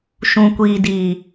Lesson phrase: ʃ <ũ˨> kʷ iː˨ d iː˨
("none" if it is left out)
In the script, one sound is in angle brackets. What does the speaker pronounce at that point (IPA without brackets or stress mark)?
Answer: ũ˨